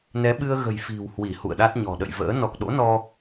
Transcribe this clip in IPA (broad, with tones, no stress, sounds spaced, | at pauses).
n ɛ˨˦ ɓ ɨ˧ ə̯ ɣ ə̤˨˩ j f i̤˨˩ w h w i˧˩ h ṵ˧˨ ə̯ ɗ a˦˥ t̚ ɲ ɔ̤˨˩ ɗ ə̰˧˨ j v ə̰ː˧˥ n ɔ˨˩ k̚ ɗ o̰˧˥ n ɔ˧